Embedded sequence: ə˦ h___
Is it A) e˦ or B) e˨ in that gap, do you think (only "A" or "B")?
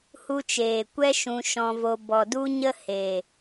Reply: B